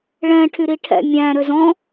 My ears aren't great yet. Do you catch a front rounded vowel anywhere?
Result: yes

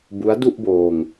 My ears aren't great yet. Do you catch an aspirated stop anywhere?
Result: no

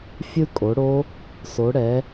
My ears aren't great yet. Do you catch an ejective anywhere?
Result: yes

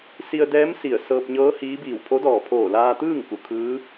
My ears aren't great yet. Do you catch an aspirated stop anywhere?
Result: yes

